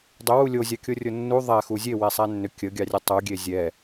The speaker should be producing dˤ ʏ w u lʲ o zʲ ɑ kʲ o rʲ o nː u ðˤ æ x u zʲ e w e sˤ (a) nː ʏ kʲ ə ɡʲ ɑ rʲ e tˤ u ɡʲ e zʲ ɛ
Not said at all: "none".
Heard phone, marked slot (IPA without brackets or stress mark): æ